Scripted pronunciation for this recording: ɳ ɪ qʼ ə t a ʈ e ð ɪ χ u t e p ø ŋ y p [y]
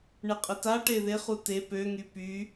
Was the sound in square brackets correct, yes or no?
yes